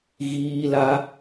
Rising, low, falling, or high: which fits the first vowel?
high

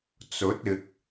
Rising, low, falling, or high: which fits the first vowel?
rising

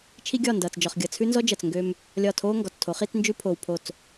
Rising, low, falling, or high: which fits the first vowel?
high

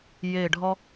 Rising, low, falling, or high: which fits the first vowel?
falling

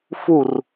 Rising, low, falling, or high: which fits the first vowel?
falling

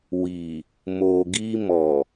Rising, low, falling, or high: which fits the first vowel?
low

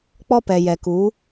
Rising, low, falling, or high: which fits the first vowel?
high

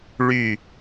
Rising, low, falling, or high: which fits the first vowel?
falling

